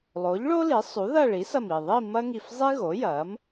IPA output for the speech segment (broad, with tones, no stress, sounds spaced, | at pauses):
lˠ o˩˥ ʎ ɭ o˥ l i˩˥ sˤ u˩˥ ð ɐ˥˧ ɭ i˩˥ s ɐ˧˩ m i˧˩ ðˤ i˥˧ m ɐ˥ ŋ i˧˩ f zˤ i˥ ɣ o˩˥ j ɐ˩˥ m